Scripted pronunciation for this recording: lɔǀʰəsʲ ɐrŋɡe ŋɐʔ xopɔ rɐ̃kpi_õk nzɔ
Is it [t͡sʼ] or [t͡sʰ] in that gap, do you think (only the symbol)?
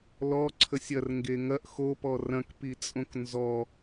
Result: t͡sʼ